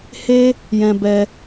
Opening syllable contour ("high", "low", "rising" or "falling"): high